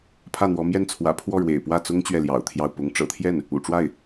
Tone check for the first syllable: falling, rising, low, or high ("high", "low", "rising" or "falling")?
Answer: falling